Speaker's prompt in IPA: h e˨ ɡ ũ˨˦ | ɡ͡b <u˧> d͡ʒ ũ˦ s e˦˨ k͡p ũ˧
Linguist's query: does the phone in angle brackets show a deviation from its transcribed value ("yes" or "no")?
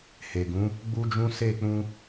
yes